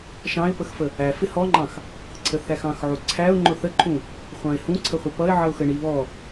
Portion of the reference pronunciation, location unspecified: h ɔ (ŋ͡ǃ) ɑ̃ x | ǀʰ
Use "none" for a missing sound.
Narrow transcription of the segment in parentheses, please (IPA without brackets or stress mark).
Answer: ŋ͡ǃ